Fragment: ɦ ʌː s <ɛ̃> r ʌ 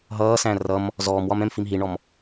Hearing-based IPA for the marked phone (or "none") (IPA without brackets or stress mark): æ̃